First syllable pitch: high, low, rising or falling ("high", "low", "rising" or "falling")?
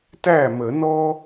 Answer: falling